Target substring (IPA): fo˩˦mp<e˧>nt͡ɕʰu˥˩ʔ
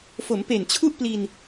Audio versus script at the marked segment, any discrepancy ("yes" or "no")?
yes